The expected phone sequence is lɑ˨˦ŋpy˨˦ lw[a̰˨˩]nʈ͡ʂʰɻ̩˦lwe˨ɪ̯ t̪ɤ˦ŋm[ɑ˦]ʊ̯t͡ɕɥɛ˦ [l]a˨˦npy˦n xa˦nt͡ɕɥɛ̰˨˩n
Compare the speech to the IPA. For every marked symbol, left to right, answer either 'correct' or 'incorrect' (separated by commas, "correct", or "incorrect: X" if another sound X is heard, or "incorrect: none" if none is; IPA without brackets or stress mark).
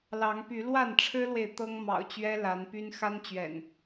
incorrect: a˥˨, incorrect: ɑ̰˨˩, correct